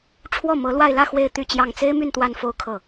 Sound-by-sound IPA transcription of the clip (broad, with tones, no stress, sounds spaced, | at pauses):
ʈ͡ʂʰ w ɔ˥˩ m ɤ˧˥ l w a˥˧ ɪ̯ l ä˥˧ x w e˥˧ ɪ̯ t̪ y˥˧ t͡ɕ j ɑ˥˩ ŋ t͡s e˥ ɪ̯ m y˥˧ n t̪ w a˥˧ n f o˥˧ ʊ̯ kʰ ɤ˥˩